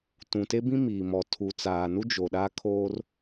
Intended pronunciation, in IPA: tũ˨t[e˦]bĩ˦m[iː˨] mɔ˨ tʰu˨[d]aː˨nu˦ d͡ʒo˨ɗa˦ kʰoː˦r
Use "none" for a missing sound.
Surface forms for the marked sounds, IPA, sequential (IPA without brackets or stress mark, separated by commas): e˦, iː˨, t͡s